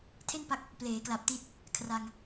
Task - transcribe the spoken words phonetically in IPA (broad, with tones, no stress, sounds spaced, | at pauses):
tʰ e˥˩ n p a˦˥ k̚ | p l eː˩˦ k l a˨˩ p̚ t i˦˥ t̚ | kʰ r a˧ ŋ